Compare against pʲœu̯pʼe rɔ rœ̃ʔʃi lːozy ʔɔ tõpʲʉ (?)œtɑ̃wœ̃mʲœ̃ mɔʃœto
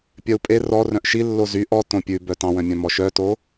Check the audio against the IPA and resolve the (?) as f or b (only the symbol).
b